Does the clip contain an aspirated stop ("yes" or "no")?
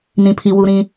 yes